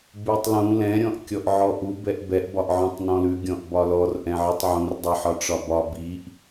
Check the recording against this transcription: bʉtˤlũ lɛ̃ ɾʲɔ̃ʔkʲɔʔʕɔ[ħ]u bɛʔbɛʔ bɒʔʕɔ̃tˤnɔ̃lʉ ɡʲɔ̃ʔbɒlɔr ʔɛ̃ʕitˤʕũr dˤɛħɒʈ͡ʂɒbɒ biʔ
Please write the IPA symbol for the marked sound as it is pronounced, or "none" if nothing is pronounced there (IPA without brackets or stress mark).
ʔ